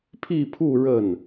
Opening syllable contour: falling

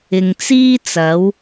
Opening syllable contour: low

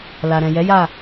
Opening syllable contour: low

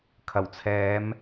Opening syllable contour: low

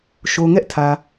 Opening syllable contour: low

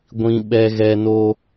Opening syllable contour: high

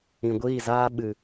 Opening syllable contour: low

